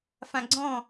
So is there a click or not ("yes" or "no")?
yes